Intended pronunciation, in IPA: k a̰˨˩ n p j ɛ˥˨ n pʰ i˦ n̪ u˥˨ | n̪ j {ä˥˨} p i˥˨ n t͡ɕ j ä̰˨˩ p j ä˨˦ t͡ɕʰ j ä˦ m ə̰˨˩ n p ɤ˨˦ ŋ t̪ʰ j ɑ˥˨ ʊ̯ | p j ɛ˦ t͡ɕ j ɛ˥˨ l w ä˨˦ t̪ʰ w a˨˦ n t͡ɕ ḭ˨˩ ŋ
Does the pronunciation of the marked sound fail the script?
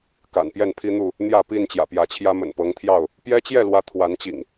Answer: no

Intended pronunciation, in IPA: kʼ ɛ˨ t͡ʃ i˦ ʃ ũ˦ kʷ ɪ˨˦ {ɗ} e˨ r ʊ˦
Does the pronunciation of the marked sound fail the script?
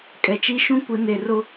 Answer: yes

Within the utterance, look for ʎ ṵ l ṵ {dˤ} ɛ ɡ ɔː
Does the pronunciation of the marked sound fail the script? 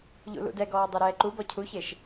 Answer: yes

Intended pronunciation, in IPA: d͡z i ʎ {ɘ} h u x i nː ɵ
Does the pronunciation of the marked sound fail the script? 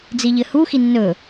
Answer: no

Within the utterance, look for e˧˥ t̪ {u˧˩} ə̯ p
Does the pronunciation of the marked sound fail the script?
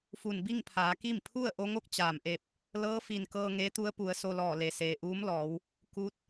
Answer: yes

